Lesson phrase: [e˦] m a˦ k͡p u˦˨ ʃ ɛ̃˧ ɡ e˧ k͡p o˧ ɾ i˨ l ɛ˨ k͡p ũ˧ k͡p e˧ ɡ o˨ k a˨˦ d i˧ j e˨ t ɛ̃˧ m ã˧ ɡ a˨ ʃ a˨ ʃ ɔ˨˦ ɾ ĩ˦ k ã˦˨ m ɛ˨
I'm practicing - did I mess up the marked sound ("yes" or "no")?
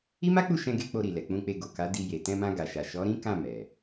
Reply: yes